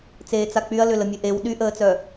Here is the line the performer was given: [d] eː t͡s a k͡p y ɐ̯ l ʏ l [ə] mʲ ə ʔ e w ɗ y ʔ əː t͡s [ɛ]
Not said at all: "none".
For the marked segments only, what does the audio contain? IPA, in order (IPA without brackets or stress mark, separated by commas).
t͡s, ə, œ